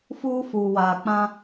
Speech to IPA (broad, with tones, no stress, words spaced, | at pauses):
fuː˦fuː˨waː˨ k͡pã˦